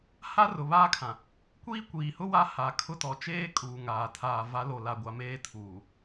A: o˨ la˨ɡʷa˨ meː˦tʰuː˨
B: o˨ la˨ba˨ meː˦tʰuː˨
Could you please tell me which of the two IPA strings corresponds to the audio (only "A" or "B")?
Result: A